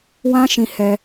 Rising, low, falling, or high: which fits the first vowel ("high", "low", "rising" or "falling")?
high